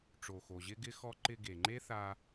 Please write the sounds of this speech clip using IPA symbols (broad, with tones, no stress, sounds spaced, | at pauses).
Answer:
ʈ͡ʂ o˨ x o˨ ʑ ɪ˦ ɡ ɪ˦ x ɔ˧ ǃ ɪ˧ ɡ e˨ ŋ͡ǃ e˦ θ a˧